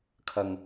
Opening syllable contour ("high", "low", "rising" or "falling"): low